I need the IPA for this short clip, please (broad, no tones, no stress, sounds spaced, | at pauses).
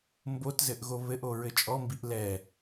m b o t z ɘ ʔ ɣ o β ɘ ʔ o ɹ ɘ t͡ʃʼ ɔ m b i ʔ l ɛ